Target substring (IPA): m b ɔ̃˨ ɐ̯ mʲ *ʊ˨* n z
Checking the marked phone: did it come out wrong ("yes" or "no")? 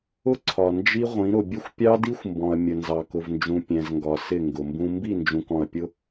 yes